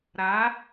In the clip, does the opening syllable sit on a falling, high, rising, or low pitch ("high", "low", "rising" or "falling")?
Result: rising